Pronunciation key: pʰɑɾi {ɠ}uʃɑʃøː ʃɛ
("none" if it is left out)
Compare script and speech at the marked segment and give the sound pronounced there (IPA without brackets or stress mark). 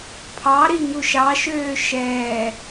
ŋ